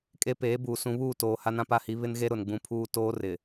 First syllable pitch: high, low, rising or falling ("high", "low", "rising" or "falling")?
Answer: high